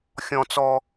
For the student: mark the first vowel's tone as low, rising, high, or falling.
high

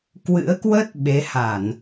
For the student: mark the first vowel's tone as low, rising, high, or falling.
rising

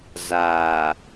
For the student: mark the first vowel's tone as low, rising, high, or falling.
low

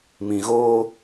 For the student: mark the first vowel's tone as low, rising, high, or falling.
low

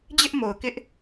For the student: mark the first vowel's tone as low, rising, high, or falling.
high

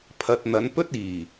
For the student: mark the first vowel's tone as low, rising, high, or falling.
low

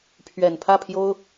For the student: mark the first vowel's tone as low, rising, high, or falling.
low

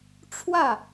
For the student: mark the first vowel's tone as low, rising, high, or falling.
falling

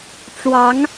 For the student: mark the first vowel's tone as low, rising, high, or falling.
rising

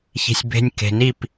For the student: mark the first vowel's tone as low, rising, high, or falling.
low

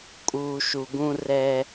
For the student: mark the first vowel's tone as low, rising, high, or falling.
low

